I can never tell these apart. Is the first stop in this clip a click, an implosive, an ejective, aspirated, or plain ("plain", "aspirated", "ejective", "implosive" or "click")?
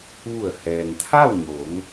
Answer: aspirated